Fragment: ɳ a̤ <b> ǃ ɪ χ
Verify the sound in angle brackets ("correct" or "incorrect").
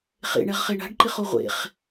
incorrect